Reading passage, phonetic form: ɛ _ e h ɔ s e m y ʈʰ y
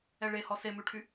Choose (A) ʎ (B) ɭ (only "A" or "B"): B